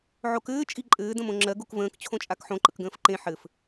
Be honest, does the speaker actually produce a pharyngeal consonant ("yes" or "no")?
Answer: yes